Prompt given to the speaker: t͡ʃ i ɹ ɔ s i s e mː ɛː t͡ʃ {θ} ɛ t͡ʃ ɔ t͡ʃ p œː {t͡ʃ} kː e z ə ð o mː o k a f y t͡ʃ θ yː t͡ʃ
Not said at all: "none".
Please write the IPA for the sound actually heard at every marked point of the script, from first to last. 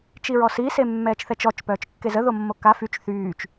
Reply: θ, t͡ʃ

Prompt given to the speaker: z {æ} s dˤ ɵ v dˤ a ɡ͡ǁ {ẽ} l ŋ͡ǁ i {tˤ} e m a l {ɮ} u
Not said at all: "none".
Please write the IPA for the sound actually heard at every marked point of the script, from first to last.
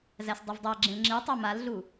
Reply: æ, ẽ, tˤ, ɮ

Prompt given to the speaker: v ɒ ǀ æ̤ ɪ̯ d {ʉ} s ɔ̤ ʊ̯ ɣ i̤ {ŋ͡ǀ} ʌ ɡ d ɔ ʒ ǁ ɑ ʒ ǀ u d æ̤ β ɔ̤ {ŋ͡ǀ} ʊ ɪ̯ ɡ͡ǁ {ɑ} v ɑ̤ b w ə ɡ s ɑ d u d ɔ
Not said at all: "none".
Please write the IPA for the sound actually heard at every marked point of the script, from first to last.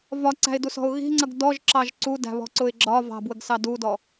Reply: u, ŋ͡ǀ, ǀ, ɒ

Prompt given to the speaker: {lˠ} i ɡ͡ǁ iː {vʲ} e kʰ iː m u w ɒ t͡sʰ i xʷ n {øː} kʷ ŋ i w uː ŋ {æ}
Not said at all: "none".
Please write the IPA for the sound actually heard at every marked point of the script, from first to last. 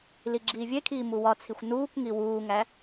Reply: l, vʲ, uː, æ

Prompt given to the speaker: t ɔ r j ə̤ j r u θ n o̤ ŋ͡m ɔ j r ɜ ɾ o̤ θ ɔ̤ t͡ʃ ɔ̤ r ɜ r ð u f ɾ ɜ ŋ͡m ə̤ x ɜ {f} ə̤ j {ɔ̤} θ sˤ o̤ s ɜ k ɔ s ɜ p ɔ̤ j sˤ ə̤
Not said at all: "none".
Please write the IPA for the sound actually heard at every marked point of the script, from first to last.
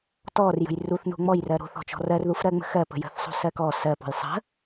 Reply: p, ə̤

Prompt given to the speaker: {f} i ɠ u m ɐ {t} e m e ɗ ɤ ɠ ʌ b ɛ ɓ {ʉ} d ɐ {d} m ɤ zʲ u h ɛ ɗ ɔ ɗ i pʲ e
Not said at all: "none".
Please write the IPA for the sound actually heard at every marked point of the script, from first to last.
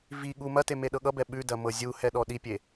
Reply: v, t, ʉ, none

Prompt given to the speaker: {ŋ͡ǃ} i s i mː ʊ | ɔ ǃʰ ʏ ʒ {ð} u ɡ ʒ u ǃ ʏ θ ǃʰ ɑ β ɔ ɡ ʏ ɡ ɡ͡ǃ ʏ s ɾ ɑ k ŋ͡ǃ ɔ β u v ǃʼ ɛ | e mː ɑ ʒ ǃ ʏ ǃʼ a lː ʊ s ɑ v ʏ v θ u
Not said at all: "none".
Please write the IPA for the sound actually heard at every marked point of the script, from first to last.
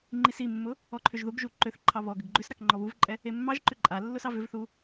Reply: ŋ͡ǃ, ð

